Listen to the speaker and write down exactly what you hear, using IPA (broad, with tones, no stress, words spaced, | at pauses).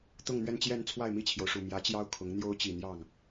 t̪ʊ˥˧ŋn̪ɥɛ˥˧nt͡ɕjɛ˥˧nt͡sʰwa˥˧ɪ̯ mi˥˩t͡ɕʰjo˩ʊ̯ʂu˨˩ mjä˧˥t͡ɕjɑ˥ʊ̯ kʰʊ˧˥ŋ n̪jo˥ʊ̯t͡ɕi˨˩ n̪jɑ˥˩ŋ